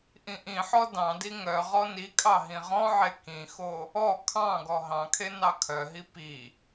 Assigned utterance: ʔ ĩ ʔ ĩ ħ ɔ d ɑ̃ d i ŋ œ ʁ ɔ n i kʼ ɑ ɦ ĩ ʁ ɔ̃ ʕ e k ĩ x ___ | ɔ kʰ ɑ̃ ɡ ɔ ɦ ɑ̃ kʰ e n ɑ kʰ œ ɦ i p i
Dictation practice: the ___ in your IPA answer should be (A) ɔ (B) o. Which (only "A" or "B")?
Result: B